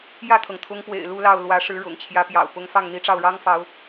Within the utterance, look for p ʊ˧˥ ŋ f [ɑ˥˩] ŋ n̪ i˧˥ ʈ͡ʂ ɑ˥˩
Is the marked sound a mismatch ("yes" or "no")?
no